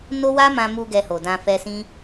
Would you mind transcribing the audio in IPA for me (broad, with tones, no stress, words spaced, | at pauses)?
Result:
no˦ wa˦mã˧mu˧ ɡɛ˧ho˨dã˧ fɛ˧sĩ˦